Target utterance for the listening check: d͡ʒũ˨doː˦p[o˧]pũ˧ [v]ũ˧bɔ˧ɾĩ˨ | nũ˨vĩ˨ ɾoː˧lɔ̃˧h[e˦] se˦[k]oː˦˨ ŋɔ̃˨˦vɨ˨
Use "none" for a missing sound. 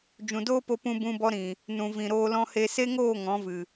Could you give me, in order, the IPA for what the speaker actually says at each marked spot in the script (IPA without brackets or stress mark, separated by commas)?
o˧, b, e˧, ŋ